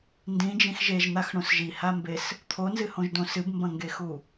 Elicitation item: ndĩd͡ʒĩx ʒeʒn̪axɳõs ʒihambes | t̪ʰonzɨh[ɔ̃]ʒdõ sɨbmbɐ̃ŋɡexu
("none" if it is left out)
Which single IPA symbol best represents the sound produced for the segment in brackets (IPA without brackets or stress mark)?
õ